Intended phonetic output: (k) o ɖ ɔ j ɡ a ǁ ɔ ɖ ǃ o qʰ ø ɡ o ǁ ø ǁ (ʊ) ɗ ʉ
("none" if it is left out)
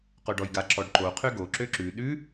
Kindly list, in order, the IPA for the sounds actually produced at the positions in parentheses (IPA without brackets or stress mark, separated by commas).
q, ʉ